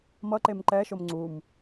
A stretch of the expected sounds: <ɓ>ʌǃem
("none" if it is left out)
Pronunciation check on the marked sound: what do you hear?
m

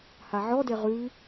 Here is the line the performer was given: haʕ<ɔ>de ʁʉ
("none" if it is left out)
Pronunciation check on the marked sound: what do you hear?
ɔ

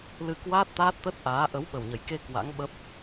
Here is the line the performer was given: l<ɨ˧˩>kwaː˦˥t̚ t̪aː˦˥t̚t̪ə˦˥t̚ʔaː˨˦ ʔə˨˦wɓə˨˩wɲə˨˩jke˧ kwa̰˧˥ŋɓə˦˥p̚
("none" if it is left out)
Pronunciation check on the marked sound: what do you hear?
ɨ˧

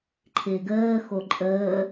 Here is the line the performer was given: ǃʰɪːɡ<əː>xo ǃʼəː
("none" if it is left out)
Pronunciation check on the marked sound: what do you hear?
əː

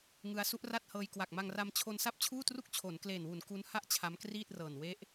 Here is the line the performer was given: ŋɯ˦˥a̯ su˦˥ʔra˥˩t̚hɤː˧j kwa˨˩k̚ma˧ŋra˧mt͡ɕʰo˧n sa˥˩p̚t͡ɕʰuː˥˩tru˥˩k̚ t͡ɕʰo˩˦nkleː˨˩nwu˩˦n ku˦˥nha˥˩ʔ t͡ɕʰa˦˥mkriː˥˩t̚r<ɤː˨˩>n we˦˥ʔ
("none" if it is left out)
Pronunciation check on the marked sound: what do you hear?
ɤː˨˩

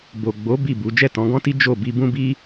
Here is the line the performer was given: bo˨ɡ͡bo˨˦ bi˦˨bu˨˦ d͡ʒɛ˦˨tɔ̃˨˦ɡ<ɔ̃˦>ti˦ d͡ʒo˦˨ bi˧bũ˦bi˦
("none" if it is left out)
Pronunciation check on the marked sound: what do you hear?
ɔ̃˦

